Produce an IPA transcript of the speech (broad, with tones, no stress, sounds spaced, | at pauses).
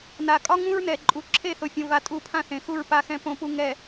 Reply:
n a˨ kʼ ɒ˦ ŋ ũ˦ ɹ n ɛ˨ ǃʼ u˨ ǁʰ e˦˨ θ o˨ fʲ õ˨ v a˨ tʼ u˦˨ pʰ ã˦ θ ẽ˨ x u˦˨ ɹ p a˨ x ɛ̃˨ p õ˨ p u˨ ŋ ɛ˨